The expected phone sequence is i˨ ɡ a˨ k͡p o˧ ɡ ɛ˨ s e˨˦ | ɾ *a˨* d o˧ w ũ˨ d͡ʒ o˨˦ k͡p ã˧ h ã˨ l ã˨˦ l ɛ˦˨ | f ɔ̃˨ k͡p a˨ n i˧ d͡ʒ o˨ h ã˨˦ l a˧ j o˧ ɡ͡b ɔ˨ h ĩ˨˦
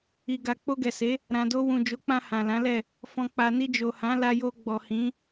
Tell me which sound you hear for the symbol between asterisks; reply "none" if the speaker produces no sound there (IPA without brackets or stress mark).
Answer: ã˨